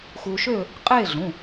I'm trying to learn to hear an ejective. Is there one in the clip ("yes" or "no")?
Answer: yes